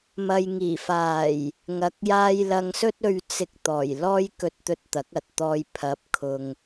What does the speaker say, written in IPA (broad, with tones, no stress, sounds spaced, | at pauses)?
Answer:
m ɐ˨ j ŋ iː˨˩ f aː˨˩ j | ŋ ɐ˧ k̚ j aː˥ j l ɐ˧ ŋ s ɵ˥ t̚ ɵ˧ ɥ t͡s ɪ˧ k̚ t̪ ɔː˨˩ j l ɔː˥ j k ɵ˧ t̚ t̪ ɵ˧ t̚ t̪ ɐ˨˥ k̚ ɐ˨ t̚ t̪ ɔː˧ j pʰ ɐ˨˥ p̚ kʰ ʊ˨ ŋ